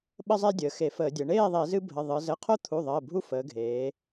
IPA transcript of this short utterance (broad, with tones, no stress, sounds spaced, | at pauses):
ɓ ə˦ zˤ e˦ dʲ əː˩˧ x e˧˩˧ f əː˧˩˧ dʲ ə˩˧ ɳ eː˥˨ ðˤ e˧˩˧ z ɨ˦ bʱ ə˩˧˩ ðˤ ɨ˩˧ z ə˩˧˩ qʰ o˦ t̪ʰ u˩˧˩ ðˤ əː˩˧˩ bʱ u˦ f əː˩˧ ɡʱ eː˩˧